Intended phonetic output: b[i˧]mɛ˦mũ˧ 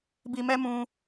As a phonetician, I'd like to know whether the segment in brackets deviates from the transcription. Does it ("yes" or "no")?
no